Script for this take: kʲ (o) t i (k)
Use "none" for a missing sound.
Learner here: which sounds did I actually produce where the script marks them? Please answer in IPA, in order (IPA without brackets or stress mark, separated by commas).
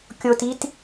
o, t